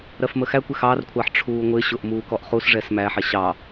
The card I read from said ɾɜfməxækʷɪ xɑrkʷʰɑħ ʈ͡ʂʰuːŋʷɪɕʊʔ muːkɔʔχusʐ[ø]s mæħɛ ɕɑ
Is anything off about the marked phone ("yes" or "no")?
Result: yes